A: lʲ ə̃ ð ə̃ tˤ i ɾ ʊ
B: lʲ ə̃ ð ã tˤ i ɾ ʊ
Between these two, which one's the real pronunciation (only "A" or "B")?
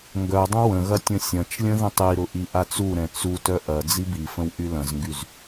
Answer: A